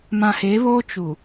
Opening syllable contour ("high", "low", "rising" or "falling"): low